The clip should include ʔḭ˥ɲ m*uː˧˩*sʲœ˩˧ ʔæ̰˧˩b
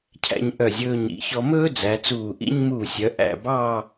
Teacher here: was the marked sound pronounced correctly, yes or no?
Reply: yes